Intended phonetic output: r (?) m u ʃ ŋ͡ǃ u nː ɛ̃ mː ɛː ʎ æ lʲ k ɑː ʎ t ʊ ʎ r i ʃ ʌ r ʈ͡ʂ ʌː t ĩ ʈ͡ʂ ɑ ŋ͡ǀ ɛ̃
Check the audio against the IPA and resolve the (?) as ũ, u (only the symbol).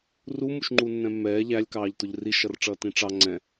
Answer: u